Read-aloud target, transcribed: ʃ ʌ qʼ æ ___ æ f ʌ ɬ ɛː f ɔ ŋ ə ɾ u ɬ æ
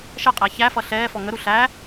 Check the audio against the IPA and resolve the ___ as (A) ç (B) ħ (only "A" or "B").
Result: A